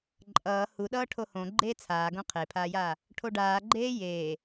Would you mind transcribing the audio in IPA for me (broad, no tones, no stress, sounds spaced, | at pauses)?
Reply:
ǃʼ ʌː h u ɗ ʌː ʈʰ o h õ ɡ͡ǃ eː t͡sʰ aː ɡ õ qʰ e pʰ aː j aː | ʈʰ o ɖ aː ɡ͡ǃ eː j eː